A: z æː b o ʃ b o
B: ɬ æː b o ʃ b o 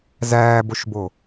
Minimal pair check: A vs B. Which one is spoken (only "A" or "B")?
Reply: A